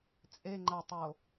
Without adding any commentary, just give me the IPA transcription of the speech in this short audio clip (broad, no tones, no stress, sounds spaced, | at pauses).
t͡sʼ e ŋ͡ǃ a tˤ o